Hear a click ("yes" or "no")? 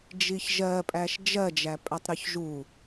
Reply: no